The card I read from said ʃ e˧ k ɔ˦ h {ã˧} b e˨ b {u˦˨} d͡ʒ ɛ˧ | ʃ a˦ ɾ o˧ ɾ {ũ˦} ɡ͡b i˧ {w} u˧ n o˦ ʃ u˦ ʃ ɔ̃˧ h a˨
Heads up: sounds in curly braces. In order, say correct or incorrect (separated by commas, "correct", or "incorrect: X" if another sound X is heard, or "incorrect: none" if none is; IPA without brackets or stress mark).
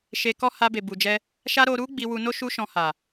incorrect: a˧, incorrect: u˨, incorrect: u˦, correct